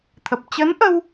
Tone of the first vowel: low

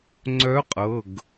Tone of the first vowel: rising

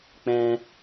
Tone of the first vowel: high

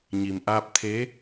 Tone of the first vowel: low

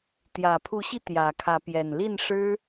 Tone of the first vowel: low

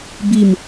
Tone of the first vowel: falling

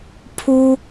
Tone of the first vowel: high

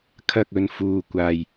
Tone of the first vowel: low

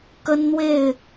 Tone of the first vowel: high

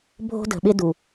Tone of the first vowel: high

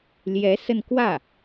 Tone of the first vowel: rising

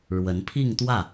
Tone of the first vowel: rising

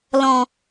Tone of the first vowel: low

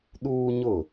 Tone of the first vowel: high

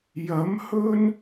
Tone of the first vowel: rising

